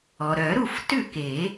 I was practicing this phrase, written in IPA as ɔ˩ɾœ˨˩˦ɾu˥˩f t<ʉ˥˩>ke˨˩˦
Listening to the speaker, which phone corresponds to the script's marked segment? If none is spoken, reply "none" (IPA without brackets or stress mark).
ʉ˥˩